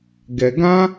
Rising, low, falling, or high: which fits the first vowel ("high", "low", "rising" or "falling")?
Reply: low